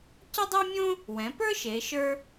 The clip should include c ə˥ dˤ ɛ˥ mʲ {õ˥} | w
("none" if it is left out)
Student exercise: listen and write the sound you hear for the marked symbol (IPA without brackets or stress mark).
õ˥